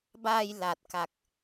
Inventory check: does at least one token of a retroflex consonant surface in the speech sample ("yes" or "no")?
no